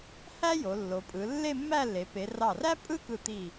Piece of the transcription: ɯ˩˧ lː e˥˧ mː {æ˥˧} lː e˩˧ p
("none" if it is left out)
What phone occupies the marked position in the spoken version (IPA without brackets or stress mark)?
æ˥˧